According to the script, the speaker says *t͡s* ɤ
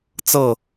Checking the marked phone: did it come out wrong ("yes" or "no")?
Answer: no